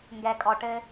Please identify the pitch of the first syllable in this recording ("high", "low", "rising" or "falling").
low